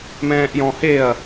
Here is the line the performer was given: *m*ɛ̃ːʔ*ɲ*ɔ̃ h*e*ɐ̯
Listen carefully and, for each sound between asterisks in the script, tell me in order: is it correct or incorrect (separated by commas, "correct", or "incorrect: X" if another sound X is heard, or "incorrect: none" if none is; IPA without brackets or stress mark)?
correct, incorrect: j, correct